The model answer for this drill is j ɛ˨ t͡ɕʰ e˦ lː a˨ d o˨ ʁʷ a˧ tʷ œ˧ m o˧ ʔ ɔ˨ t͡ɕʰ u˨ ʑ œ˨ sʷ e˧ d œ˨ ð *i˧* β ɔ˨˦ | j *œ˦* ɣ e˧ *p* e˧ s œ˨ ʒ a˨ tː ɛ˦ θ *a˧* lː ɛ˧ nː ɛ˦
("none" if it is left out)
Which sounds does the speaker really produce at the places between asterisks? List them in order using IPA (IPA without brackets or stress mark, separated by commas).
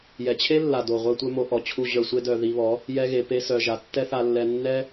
i˧, ɛ˦, p, a˧